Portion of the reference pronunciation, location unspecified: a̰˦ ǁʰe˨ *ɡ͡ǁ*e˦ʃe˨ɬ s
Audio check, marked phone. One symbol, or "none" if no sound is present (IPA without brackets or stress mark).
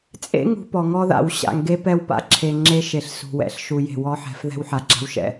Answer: ŋ͡ǁ